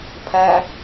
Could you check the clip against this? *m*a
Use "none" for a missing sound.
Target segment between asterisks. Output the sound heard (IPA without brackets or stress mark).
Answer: pʰ